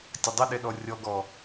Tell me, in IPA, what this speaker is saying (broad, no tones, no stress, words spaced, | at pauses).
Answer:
tʲɐdˤɨɗɛ ɗɔrʲɔɡɔ